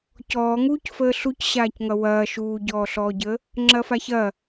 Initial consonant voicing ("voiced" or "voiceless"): voiceless